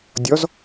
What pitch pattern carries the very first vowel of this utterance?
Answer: rising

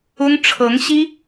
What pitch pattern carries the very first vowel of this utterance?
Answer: high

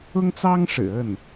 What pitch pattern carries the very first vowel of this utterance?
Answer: high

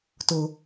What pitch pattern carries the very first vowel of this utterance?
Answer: high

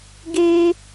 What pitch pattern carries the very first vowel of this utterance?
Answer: high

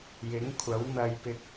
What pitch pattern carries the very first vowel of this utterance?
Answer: rising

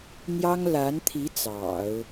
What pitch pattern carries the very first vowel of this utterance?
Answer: high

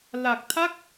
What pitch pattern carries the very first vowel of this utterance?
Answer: low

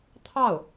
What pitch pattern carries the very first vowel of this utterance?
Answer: falling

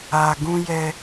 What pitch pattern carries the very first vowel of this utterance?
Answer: low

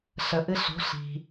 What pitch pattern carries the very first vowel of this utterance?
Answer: low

